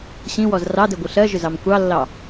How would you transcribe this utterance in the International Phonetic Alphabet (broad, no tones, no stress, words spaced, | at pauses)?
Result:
ɕĩwɔz rɑdɜɡʷɨ ɬɜʒʏzɑm kʷɑlːɑ